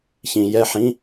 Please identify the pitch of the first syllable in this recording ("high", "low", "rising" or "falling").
low